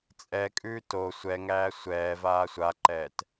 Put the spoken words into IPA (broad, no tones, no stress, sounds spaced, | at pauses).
t͡sʼ ɛ kʼ ʉː t o sʷ ɛ ŋ æː sʷ ɛː v aː sʷ a ǃ ɛː t